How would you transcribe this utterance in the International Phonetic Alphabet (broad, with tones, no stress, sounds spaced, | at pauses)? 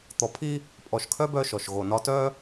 t̪ ɔ˨ pʰ i˦ | pʼ ɔ˨ ʃ kʰ œ˦ b œ˦ ʃ ɔ˨ ʃ ɣ o˨ n ɒ˦ t œ˦